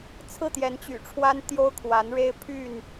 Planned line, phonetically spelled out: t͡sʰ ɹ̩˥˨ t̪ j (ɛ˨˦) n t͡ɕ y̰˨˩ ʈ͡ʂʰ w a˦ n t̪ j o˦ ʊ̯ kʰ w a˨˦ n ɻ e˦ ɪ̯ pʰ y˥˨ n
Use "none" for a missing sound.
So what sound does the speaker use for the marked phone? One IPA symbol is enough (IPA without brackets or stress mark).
ɛ˨˦